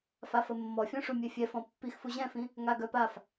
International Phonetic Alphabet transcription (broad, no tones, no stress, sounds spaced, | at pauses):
f a f ə mː ɔ fʲ ɔ̃ ʂ u mʲ ɛ fʲ ɛ f ɔ̃ pː i x f u ʑ ɛ̃ f ĩ | ŋ a ɡ œ p a f